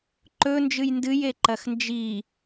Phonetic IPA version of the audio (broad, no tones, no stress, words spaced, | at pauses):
ǃɵ nd͡ʒɨjndɨje ǃɐxnd͡ʒi